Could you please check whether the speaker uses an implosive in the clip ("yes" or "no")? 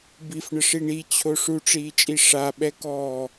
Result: yes